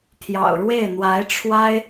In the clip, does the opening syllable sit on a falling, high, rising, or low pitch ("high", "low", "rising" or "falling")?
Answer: low